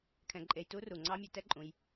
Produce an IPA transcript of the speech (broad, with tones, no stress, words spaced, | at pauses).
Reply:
kʰɛ̃˧ǃʼe˧j tu˦ ru˨ ŋ͡ǀɑ˦mʲœ˧ tɛ˦ǃʼũ˧j